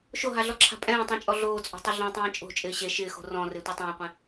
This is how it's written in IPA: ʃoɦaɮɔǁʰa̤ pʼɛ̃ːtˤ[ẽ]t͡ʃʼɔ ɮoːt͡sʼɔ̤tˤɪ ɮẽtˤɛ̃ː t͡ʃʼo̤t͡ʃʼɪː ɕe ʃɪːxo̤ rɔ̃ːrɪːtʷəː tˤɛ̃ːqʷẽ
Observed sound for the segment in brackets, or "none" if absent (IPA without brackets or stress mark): ẽ